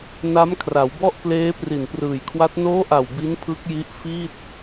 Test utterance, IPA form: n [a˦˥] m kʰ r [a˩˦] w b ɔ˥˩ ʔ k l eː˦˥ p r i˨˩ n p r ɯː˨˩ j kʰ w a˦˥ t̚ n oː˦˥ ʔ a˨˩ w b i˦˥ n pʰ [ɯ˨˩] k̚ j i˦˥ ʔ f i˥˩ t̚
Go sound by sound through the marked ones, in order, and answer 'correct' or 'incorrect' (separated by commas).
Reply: correct, correct, incorrect